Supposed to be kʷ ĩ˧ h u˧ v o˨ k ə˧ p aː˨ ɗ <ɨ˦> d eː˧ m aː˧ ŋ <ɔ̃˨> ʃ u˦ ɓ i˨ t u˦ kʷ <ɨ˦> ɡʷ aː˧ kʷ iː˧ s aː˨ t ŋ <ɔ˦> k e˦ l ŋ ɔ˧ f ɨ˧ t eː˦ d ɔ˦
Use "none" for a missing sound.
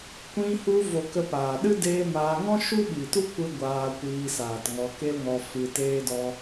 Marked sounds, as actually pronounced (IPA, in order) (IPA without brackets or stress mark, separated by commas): ɨ˦, ɔ̃˦, ɨ˦, ɔ˧